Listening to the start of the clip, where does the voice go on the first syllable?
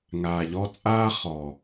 low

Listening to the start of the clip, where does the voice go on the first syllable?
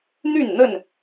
falling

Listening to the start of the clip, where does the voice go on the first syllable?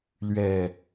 low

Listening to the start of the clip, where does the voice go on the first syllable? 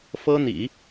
high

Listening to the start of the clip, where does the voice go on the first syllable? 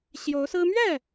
rising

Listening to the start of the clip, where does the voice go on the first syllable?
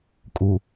low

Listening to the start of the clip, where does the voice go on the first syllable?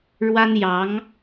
high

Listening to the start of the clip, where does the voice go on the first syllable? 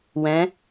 rising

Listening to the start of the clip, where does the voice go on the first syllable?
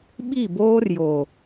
falling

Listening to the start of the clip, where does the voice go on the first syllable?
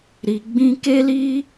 low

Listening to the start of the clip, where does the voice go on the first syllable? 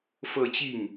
falling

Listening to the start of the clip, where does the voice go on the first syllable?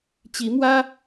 rising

